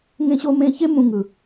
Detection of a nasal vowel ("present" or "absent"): present